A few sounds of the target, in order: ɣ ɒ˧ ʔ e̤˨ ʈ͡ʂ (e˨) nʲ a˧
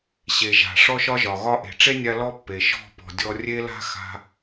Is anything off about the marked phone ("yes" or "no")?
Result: yes